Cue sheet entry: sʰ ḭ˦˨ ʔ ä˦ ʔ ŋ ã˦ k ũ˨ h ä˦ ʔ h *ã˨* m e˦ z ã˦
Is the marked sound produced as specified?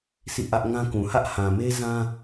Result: yes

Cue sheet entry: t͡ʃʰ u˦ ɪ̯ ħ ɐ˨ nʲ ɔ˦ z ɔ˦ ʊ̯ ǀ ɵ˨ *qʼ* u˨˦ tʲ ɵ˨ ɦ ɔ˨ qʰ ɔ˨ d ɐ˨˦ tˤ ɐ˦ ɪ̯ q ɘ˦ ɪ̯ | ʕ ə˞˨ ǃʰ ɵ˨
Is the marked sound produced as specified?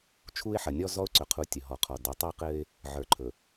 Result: no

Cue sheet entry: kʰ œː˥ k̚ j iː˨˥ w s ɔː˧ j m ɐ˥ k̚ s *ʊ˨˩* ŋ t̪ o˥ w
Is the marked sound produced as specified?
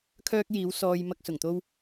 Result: yes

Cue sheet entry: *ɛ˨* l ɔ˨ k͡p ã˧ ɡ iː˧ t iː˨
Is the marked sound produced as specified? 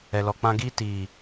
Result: yes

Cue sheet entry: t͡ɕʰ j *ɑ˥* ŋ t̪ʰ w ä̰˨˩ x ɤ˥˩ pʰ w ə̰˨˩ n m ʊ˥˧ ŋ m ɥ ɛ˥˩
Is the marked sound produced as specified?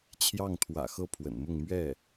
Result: no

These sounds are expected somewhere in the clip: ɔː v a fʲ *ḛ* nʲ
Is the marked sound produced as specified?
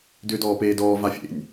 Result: yes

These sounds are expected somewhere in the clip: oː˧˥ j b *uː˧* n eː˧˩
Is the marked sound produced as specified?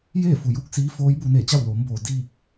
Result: no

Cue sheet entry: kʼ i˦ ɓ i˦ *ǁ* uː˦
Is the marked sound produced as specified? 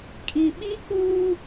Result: no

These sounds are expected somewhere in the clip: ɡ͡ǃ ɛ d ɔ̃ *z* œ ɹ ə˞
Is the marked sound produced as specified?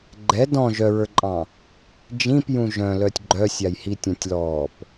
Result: no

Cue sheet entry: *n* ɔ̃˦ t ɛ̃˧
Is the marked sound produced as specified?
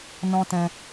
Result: yes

